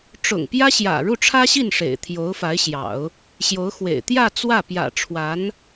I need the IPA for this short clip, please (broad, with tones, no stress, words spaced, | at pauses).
ʈ͡ʂʊ̰˨˩ŋpjä˥ɕjä̰˨˩ ɻu˥˩ʈ͡ʂʰä˥ɕi˥˩n ʂḛ˨˩ɪ̯t̪ʰjo˧˥ʊ̯fa˧˥ɪ̯ɕjɑ̰˨˩˦ʊ̯ | ɕjo˧˥ʊ̯xwḛ˨˩ɪ̯ t̪jä˥˧ t͡swä˥˩ pjä̰˨˩ʈ͡ʂʰwa˧˥n